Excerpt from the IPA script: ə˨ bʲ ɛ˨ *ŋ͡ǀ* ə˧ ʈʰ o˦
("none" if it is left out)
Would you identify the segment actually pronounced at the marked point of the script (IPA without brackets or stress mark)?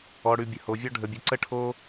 ǀ